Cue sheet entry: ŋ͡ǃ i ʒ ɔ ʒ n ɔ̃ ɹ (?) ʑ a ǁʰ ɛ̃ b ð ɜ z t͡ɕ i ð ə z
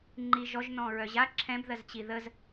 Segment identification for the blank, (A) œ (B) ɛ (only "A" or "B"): A